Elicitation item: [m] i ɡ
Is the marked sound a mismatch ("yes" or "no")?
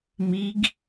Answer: no